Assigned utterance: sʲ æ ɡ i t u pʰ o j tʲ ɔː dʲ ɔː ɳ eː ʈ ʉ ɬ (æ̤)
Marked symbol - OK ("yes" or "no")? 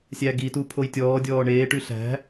yes